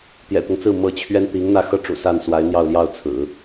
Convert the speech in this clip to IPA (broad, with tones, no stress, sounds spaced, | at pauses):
t̪ j ɛ̰˨˩ t̪ ɤ˦ ŋ t͡s ɹ̩˥˩ m ɤ˧˥ t͡ɕʰ ɥ ɛ˥ n t̪ i˧˥ ŋ n̪ ä˥˩ x ɤ˥ ʈ͡ʂ ṵ˨˩ s a˥˩ n s w a˧˥ ɪ̯ n̪ j ɑ˥˧ ʊ̯ l j ɑ˥˩ ʊ̯ t͡sʰ ɹ̩˨˩˦